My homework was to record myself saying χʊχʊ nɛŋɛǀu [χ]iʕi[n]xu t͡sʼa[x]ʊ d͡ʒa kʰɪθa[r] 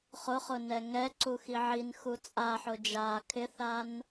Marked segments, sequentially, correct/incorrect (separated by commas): incorrect, correct, incorrect, incorrect